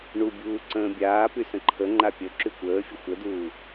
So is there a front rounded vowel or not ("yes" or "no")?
yes